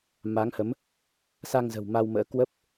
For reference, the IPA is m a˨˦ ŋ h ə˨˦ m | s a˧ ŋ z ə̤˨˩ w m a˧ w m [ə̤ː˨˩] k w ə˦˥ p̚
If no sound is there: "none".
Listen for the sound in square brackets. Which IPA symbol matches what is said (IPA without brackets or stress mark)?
ə̰ː˧˥